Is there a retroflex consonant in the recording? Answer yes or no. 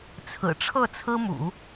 yes